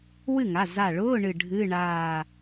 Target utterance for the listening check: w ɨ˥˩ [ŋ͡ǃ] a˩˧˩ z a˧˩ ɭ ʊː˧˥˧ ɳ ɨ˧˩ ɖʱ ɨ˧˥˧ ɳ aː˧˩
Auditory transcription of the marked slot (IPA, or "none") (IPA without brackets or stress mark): ŋ